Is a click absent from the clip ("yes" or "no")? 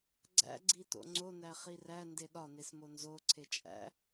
no